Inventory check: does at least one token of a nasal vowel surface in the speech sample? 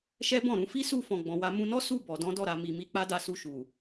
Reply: yes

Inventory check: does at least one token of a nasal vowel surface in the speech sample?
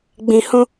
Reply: yes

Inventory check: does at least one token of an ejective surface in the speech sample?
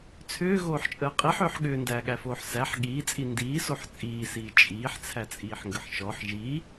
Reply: yes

